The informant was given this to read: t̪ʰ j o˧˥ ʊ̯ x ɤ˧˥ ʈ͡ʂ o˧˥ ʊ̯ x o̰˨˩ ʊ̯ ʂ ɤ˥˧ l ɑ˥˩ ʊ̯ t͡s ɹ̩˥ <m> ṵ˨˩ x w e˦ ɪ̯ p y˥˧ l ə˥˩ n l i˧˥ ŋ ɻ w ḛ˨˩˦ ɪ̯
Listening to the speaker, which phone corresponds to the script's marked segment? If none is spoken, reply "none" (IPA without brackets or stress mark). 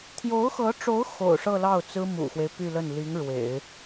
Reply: m